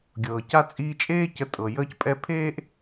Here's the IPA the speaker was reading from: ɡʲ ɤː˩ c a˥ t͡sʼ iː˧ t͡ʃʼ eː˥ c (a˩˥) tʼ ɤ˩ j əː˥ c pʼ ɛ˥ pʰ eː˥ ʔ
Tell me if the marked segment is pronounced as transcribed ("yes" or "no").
no